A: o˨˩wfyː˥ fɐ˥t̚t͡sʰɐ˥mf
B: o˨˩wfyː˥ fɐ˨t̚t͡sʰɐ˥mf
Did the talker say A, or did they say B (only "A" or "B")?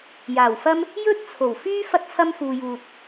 A